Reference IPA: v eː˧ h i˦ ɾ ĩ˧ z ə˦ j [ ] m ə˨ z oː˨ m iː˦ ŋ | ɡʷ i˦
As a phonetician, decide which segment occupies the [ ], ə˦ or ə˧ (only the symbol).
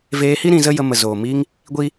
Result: ə˧